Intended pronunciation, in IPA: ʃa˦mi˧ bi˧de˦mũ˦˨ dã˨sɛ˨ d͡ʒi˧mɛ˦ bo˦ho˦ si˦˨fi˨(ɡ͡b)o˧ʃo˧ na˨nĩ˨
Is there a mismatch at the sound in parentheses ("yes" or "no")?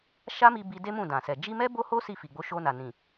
no